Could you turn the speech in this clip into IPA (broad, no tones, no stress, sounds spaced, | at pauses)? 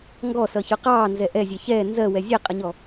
ŋ ɡ ɔ s ʌ ç ʊ q ɑː n z ɛ ʔ ɛ zʲ ɛ ç ɛː n z ɜ w ɛ zʲ ɛ qʼ ə ɲ ɔ